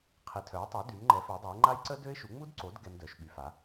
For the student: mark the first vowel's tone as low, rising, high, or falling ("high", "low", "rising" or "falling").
rising